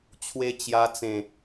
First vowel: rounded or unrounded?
unrounded